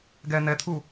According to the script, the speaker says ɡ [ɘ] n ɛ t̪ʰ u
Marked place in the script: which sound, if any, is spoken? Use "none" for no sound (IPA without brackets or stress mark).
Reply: ɛ